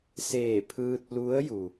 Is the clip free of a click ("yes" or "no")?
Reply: yes